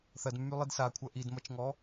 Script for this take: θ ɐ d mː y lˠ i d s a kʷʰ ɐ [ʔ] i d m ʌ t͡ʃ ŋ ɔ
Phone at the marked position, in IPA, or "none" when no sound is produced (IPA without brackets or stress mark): ʔ